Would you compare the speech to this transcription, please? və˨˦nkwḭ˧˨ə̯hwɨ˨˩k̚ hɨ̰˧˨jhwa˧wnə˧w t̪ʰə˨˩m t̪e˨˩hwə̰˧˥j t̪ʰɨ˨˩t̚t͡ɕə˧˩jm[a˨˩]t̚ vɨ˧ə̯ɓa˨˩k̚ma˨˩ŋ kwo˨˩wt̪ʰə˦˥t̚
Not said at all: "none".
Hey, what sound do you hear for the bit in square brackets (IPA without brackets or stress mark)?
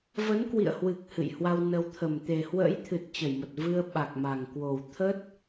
ə˨˩